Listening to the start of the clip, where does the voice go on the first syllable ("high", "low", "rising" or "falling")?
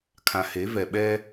low